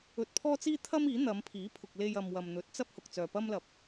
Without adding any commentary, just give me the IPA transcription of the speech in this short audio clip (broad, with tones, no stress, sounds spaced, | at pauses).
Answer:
ɵ˧ t̚ pʰ ɔː˥ t͡s iː˥ t̪ʰ ɐ˥ m iː˨˥ n̪ ɐ˨˧ m pʰ iː˨˥ pʰ ʊ˨ k̚ l e˧ j ɐ˨ m w ɐ˨ m n̪ ɵ˨˥ t̚ t͡s ɐ˥ p̚ h ʊ˨ k̚ t͡s œː˨ p ɐ˥ m l ɐ˨˥ p̚